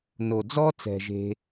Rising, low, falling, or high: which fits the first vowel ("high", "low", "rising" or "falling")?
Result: low